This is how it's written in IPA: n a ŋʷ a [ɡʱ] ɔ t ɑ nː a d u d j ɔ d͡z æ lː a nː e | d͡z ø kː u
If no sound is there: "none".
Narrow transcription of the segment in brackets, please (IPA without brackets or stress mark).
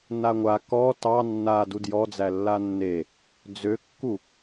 k